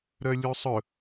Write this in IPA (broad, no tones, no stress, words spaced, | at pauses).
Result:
ɾœlʲusˤɵ